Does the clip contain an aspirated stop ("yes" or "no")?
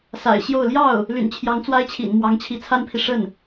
yes